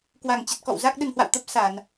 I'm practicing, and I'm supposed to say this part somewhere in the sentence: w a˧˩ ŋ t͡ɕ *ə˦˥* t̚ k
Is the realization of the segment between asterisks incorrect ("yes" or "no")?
yes